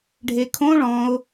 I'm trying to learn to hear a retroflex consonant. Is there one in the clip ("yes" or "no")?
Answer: yes